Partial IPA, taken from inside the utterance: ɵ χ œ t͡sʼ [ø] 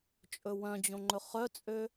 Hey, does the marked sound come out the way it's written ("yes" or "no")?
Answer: yes